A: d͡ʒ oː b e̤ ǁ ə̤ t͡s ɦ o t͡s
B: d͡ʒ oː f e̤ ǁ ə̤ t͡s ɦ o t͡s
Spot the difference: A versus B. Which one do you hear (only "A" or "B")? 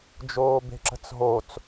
A